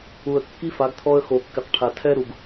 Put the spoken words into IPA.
u˨ ə̯ kː i˦ f a˨˦ ɡ t̪ʰ ɔ˦ ə̯ x o˨ kː ɪ˨ q ʈʰ a˨ tʰ ɛ˦ ɾ u˨ ɡ

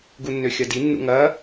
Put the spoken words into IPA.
ɡ u nː ø xʲ ɐ d i nː ṵ ŋ ɐ

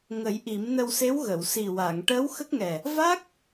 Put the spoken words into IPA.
ŋ ə˨˩˦ j ʔ i˨˩˦ m n ə˧ w s e˧˥ w ɣ ə˨˩˨ w s i˨˩ w a˨˩˨ ŋ ʈ əː˧˥ w x ə˦˥ k̚ ŋ ɛ˨˩ | v a˦˥ k̚

